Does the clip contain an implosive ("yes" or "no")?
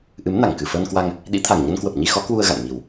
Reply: yes